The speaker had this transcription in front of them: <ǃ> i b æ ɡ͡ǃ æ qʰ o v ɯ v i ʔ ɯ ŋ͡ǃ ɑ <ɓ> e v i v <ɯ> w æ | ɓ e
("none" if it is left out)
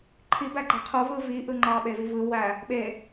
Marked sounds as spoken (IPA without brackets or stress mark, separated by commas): ǃʰ, ɓ, ɯ